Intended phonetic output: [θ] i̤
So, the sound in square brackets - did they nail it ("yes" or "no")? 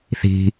yes